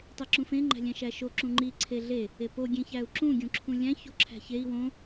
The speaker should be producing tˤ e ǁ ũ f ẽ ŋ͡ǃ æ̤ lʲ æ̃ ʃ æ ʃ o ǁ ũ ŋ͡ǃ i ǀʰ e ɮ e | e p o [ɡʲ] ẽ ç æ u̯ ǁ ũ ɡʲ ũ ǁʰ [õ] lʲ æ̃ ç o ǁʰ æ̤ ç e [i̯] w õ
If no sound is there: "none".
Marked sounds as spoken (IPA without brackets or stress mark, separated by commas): ɡʲ, ũ, i̯